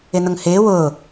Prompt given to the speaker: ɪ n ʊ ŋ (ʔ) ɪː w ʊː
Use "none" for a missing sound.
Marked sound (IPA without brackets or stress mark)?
h